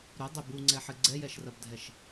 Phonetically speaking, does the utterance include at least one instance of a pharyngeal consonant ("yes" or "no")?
yes